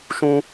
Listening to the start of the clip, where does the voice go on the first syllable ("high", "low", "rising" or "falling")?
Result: high